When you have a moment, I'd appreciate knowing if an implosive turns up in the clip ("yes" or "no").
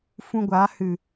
no